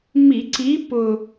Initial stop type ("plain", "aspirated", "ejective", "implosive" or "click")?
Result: click